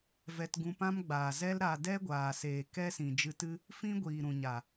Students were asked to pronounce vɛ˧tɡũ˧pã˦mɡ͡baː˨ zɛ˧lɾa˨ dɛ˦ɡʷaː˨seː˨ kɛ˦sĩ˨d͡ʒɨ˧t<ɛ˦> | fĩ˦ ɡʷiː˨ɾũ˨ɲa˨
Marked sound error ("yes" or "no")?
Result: yes